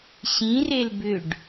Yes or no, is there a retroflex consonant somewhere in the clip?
yes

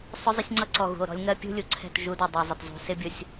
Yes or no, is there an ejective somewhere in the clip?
no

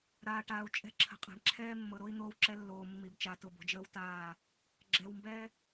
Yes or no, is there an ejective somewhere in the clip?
yes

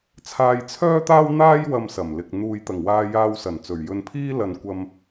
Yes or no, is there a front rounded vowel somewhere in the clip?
yes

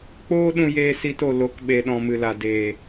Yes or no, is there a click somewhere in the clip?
no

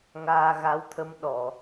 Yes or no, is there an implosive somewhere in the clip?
yes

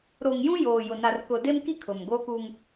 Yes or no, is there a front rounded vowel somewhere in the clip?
no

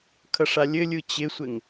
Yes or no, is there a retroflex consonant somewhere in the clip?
yes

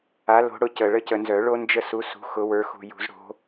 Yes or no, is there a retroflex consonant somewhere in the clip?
yes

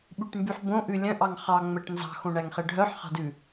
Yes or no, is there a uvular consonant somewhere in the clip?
yes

